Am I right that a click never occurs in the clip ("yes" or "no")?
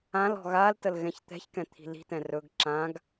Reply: no